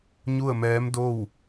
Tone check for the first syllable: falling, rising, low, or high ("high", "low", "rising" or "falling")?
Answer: falling